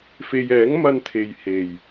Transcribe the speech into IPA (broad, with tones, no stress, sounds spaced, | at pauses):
f e˨ j ɛː˨˥ ŋ m ɐ˧ n t̪ʰ e˨ j h e˨˩ j